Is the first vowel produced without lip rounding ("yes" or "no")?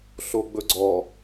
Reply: no